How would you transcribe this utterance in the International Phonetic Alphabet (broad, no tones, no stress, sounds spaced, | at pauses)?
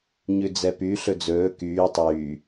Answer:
ɲ ʉ d͡z ɛ p y ɬ ɵ d͡z ɵː k yː tˤ yː